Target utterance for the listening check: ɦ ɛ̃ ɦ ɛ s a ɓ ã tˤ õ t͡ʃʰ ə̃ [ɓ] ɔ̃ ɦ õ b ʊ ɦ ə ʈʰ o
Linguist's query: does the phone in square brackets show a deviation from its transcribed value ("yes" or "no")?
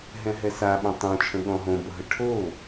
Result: yes